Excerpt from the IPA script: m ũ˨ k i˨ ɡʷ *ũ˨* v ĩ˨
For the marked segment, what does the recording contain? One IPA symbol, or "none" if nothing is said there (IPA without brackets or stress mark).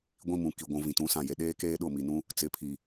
ũ˨